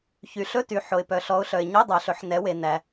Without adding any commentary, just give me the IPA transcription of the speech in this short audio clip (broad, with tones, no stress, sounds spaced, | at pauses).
ç y˩˧ ɬ ɵ˧˥˧ t y˩˧ ħ o˩ ɪ̯ p œ˩ ɬ ɔ˩˧ ʊ̯ ɬ œ˩ ɪ̯ ɲ o˧˥˧ dˤ œ˩˧ ɬ ɵ˩˧ ħ n ɛ˩˧ w e˩ n æ˩